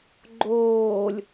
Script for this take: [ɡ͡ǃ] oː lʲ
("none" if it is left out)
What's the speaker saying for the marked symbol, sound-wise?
ɡ͡ǃ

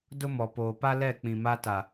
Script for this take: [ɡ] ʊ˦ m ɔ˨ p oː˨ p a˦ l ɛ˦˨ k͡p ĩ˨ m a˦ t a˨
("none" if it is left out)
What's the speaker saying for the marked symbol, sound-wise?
d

